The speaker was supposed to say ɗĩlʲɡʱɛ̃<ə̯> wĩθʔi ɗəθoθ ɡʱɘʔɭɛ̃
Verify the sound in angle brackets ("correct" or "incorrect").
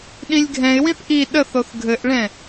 incorrect